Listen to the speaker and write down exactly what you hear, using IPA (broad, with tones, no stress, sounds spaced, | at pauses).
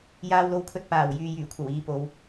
j aː˧ w l o˧ w kʰ ɵ˧ t̚ p aː˨˩ w j yː˨ j yː˨˩ kʷʰ ɐ˨˩ w iː˨ p o˨˧ w